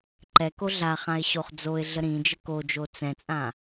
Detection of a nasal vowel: present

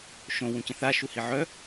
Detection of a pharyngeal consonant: present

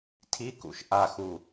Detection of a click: absent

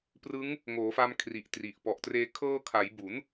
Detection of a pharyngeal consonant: absent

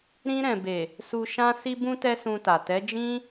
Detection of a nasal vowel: present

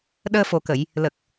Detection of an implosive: present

